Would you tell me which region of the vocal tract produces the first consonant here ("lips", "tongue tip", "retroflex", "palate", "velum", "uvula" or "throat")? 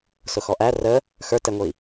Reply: tongue tip